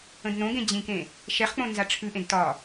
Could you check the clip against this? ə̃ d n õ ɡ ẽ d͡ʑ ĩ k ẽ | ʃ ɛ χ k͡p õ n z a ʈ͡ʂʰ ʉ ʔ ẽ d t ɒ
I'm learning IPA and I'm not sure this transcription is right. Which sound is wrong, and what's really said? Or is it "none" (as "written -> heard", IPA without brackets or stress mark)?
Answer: none